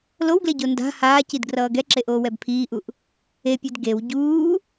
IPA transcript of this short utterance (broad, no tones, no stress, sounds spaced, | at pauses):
l o w ɡ l e ɟ o n d a̤ h aː c i d ɡ r ʌː ɡ ɛ ǁ e ʔ oː w ɛ b pʰ iː ʔ u ʔ | e pʲ e d ɡ e w ɟ uː